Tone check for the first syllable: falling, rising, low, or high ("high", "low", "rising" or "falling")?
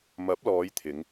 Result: rising